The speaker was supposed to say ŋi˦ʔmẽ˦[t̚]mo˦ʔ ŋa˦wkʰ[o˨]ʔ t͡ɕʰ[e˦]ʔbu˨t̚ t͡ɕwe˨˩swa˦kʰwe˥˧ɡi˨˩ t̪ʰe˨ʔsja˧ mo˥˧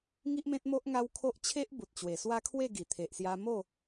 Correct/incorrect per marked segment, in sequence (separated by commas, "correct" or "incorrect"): correct, incorrect, correct